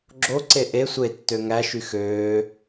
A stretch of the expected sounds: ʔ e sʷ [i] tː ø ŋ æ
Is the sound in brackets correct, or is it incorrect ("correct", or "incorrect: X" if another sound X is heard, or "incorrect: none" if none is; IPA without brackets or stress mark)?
incorrect: e